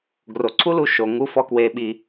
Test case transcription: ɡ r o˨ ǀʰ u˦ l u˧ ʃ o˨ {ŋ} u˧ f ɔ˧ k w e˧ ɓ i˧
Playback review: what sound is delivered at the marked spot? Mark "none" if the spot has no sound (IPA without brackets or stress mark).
ŋ